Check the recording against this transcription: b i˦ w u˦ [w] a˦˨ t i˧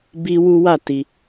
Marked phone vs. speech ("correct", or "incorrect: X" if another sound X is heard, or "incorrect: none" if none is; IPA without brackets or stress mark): correct